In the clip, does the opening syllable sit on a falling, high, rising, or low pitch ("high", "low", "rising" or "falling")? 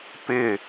falling